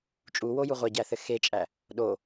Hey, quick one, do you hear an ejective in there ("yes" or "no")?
yes